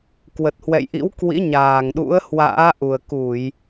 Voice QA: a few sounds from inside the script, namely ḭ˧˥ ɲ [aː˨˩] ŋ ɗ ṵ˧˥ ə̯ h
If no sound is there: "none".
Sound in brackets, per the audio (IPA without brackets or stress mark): aː˨˩